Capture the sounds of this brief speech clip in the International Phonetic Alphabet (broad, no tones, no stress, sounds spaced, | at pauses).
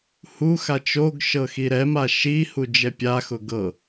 h u x a t͡ʃ o ɡ ʃ ɤ x i ɾ ɛ m a ʃ i h u d͡ʒ ɛ pʲ a x ʊ ɡ ɤ